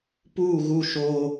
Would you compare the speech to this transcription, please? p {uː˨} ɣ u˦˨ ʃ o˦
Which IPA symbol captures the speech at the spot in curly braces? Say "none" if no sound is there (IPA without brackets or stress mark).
uː˦˨